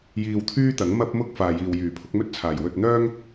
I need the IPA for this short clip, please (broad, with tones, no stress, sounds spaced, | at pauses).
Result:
j iː˧ w t̪ʰ yː˥ t̪ ɐ˨˥ ŋ m ɐ˥ p̚ m ʊ˥ k̚ f aː˨ j iː˨ w j yː˨˩ pʰ ʊ˨˥ k̚ m ɵ˥ t̚ t͡sʰ aː˨˩ j w ɵ˧ t̚ n̪ œː˥ ŋ